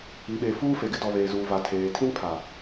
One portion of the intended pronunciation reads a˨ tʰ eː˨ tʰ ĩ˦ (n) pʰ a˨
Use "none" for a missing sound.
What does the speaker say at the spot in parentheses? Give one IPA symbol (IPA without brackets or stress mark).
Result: n